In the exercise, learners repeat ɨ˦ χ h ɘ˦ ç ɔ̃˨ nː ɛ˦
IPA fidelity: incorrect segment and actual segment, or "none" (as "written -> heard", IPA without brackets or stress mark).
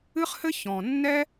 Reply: none